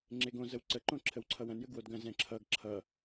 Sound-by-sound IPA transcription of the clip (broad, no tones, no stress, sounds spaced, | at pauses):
ŋ͡ǁ e ɡ õ z ə w ǀ ə ǃ õ ǁʰ ə w ǀʰ ʌ w ɐ̃ n j ə ɡ w o d ɡ ɐ̃ z ɛ̃ ǁʰ ʌ ɡ ǁʰ ʌ